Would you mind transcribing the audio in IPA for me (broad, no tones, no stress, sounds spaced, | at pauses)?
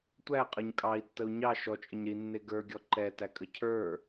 tʷ æ qʼ ə ɲ kʼ ɑ i̯ tː ə u̯ ɲ ɑ ʃ ɔ t͡ʃʼ ə ɲ ɾ i nː e ɡ ə˞ ɡʲ ɔ ǃ ɛ t æ kʼ ə cʰ ə˞